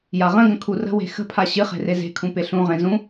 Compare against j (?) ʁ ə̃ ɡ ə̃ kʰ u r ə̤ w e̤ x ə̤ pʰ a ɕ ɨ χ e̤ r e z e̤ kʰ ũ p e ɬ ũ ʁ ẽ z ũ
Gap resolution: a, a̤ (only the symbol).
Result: a